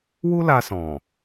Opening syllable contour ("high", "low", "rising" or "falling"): high